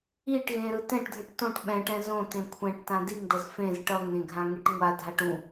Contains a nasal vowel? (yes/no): yes